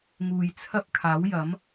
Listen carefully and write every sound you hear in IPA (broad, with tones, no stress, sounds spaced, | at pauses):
ŋ uː˨ j t͡sʰ ɐ˥ p̚ kʰ aː˨˥ w j ɐ˨˥ m